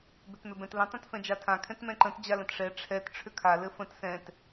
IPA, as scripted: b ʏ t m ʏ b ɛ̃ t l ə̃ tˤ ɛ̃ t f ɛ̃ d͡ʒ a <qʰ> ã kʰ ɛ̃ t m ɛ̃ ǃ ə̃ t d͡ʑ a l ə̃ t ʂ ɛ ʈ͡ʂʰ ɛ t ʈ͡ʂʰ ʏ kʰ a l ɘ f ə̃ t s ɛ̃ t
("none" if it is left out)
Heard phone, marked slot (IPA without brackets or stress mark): tʰ